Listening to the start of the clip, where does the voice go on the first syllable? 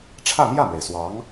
falling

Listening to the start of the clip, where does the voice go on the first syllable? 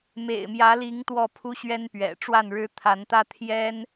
low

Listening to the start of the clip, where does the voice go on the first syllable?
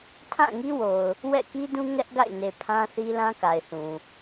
falling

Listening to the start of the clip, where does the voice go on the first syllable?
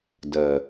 low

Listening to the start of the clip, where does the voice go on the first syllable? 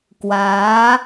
rising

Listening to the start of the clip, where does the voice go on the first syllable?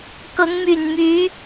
rising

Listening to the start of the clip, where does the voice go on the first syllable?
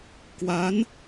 rising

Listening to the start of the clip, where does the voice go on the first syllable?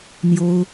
high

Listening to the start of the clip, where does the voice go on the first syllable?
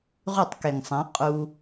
falling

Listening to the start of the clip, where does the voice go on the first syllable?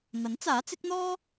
rising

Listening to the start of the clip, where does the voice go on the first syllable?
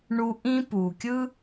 high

